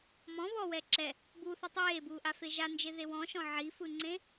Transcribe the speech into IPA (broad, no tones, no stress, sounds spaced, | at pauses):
m ɔ̃ β ɔ w ɛ ǁ ɛ | b u θ ɯ tˤ eː b uː ʔ a f e ʒ a n d͡ʒ e ð e w ɔ̃ ʃ ɔ̃ ʕ i f ɯ ŋ͡ǀ ẽ